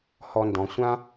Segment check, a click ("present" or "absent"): absent